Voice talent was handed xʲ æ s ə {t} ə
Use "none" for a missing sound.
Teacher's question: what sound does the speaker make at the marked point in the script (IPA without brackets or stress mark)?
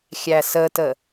t